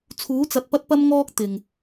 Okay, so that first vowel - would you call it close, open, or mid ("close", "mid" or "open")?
close